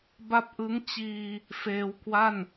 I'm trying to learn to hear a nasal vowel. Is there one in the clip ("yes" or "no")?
no